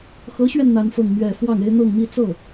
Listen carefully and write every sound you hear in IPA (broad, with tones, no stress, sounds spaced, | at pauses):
x ɤ˧˥ ɕ ɥ ɛ˧ n n̪ a˥ n f ɤ˥˧ ŋ m ɥ ɛ˥˧ f w ɑ˥˩ ŋ e˥ ɪ̯ n̪ ɤ˥˧ ŋ m i˥˧ t͡s ɤ˥˩